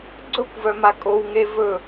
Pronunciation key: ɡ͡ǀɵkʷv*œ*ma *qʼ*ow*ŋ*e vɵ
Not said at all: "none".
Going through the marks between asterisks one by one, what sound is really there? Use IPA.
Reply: œ, kʼ, ŋ

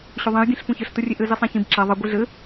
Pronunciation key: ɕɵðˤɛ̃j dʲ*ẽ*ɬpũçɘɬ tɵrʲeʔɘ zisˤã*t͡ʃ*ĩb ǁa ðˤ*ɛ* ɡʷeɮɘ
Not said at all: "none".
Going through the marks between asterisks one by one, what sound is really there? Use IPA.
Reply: ẽ, ç, ɘ

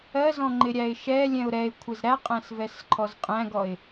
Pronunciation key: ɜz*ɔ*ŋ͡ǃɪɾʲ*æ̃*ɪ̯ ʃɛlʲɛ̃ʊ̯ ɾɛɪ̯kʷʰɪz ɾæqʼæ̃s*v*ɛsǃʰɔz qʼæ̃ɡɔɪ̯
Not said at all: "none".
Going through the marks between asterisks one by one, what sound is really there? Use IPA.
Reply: ɔ̃, æ, v

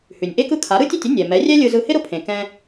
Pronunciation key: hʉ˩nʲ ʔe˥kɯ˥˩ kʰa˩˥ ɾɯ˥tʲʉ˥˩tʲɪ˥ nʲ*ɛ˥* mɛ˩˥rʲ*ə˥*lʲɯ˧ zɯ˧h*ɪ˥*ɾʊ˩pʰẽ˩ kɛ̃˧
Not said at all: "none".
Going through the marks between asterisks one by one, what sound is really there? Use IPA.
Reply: ɛ˩, ɛ˥, ɪ˥

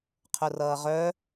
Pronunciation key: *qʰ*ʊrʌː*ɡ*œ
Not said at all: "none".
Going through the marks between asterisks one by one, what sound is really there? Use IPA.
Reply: qʰ, ʁ

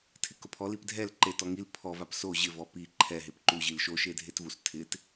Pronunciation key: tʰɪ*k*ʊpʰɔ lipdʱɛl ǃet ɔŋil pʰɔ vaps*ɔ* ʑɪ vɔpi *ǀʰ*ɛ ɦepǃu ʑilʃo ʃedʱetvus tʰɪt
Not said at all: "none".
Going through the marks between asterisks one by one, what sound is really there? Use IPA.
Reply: k, o, ǃʰ

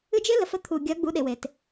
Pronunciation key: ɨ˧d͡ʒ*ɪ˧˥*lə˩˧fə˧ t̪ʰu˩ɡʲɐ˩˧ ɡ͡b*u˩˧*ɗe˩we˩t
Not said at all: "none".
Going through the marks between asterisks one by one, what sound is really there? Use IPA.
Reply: ɪ˧˥, u˩˧

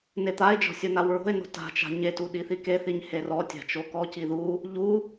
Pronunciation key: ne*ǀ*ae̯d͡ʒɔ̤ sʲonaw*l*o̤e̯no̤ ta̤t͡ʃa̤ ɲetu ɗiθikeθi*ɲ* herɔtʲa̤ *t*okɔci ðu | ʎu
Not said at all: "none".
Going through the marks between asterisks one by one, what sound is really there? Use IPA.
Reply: t̪, ɹ, ɲ, t͡ʃ

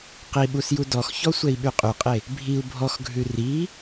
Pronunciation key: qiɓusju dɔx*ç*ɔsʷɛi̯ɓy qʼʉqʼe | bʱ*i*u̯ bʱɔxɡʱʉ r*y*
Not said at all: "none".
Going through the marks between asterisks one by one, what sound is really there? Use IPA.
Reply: ç, i, i

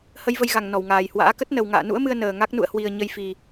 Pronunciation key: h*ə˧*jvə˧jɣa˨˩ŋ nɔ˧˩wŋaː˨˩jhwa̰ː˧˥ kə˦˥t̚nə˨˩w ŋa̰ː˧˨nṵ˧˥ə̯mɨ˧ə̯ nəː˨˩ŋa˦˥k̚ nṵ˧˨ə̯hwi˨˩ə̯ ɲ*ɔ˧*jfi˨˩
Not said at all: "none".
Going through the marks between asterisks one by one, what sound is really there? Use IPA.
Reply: ə˧, ə˧

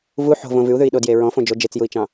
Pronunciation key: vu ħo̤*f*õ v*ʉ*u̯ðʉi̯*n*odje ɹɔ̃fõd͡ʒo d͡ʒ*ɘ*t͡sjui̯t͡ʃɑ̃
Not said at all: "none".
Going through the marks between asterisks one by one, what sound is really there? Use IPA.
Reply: v, ʉ, ɗ, e

